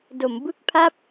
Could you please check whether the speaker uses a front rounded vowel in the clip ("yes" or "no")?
no